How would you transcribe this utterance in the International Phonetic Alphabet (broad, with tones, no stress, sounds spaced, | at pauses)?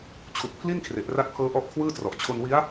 t͡ɕʰ u˨˩ k̚ pʰ l i˥˩ n kʰ r e˨˩ ʔ r a˦˥ t̚ pʰ ɤː˦˥ ʔ ɔ˦˥ ʔ kʰ w ɯː˥˩ t r ɔ˨˩ ʔ t͡ɕʰ o˧ n w i˦˥ a̯